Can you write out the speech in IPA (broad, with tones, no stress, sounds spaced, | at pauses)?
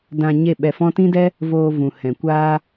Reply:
d ã˧ ɲ e˦˨ ɓ ɛ˧ f ɔ̃˦ t ĩ˦ d ɛ˦ | v oː˧ v ũ˨ h ɛ̃˨ kʷ aː˦